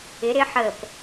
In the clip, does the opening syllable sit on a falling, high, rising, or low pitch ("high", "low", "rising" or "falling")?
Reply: rising